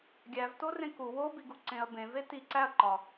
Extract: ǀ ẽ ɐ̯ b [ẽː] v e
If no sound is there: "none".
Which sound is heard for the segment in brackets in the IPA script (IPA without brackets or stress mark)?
ẽ